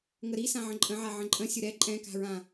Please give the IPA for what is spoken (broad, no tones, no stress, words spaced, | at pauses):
ŋəɾisãʕə̃ ǃʼə̃ʕa ʕə̃ǃʼə̃ sʲʊɾɛ ǃʼɛ̃ka̤ɹã